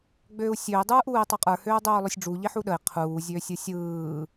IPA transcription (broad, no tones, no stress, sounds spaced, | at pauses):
ɡ͡b øː u̯ sʲ ø i̯ dˤ ɯː ʔ uː i̯ tˤ ø qʼ ə˞ h øː dˤ øː lˠ ø sʲ ɖ͡ʐ u ʎ i ħ u ɗ ə i̯ qʰ uː zʲ øː sʲ ɯ sʲ ɯː